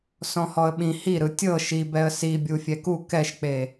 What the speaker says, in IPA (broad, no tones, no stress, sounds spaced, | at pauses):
s ɔ̃ h ɔ ə̯ ɓ ĩ h i ɾ ɯ tʲ ɤ ʃ i b ɛ ə̯ s i bʲ u fʲ ɛ k u k ɛ ʃ k͡p e